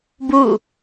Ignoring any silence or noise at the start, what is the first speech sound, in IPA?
b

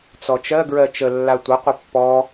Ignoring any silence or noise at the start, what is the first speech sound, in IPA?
t͡s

